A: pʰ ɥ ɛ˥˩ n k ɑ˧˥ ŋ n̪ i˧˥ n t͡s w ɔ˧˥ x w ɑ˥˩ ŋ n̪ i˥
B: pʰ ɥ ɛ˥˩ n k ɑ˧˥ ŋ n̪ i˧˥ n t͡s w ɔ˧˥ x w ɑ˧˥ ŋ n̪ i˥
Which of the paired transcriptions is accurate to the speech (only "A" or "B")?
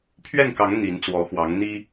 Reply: B